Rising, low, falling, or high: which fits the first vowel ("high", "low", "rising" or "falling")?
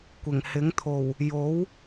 low